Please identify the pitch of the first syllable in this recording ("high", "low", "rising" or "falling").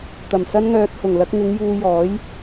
low